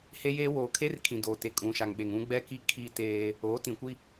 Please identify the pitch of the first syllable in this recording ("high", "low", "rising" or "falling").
high